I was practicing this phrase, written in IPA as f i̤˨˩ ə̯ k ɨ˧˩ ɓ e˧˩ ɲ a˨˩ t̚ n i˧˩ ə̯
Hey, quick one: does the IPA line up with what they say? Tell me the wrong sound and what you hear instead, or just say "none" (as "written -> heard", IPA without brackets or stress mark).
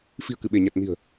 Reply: i˧˩ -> i̤˨˩